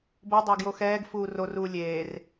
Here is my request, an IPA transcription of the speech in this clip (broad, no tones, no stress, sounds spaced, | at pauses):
b o dˤ a ɡ j o x ɛː ɡ f uː r o r uː lʲ eː r